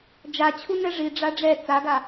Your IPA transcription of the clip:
d͡ʒ a t͡ɕʰ u n ɛ ʐ i ɖ͡ʐ a ɖ͡ʐ ɛ t͡s a ɡ a

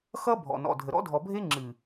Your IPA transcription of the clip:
x ʌ˦ bʱ ɔ̰˨ n ɔ̰˨ dʱ ə˨ ɾ ɔ̰˦ dʱ ɔ˨ bʱ e˦ ŋ͡ǁ ɨ˨

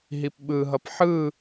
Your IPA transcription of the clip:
ɦ i p ɓ ɯ ɦ ʌ p ħ ɯ

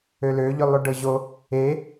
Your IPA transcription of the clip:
ø l ø ʎ ʉ lˠ ʉ ɖ ɤ ʑ o | e

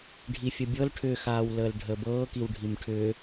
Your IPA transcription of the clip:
ɖʱ i fʲ ə bʲ ɤ l ʈʰ ʏ x aː w l əː l ɖʱ ə b ɤː k i w ɖʱ i m ʈʰ ʏ

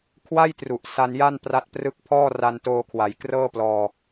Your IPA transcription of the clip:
kʰ w a˥˩ j t r u˨˩ ʔ s a˧ n j a˥˩ n p r a˦˥ t̚ p r ɯ˦˥ k̚ pʰ ɔː˥˩ r a˧ n t oː˧ kʰ w a˩˦ j k r ɤː˥˩ p l ɔː˧

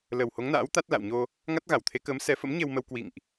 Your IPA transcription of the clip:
l ə˨˩ w h o˨˦ ŋ n a̰ː˧˥ w t̪ a˦˥ t̚ l a̰˧˨ w ɲ o˧ | ŋ a˦˥ t̚ ɣ a˧˩ w t̪ʰ e˨˦ k əː˨˦ m s ɛ˨˦ f ə̰˧˥ m ɲ e˧ w m ə˧ w k w ḭ˧˨ ŋ ʔ

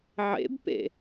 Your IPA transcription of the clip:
ʕ ḛ b p ḛ

